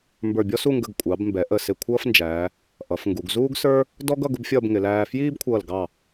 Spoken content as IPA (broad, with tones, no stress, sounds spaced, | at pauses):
m b ə˞˧˩ bʲ ɔ˥ s u˥˧ ŋ ɡ ə˧˩ ɡ kʷʼ ɑ˩˧ b m b ɛ˩˧ ʔ ə˧˩ s ɪ˧˩ kʷʰ ʌː˥ f n d͡ʒ æː˩˧ | ʔ ʌ˩˧ f ŋ ɡ u˩˧ ɡ z uː˥ ɡ s ə˞˥ | d ɔ˥ ɡ ʌ˥˧ ɡ ʊ˥ b fʲ ʌː˥˧ b ŋ ɪ˩˧ l æː˧ f j iː˥ b kʷʰ ʌː˧˩ l ɡ ɑ˧˩